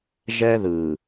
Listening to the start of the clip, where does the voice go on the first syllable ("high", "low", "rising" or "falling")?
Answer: high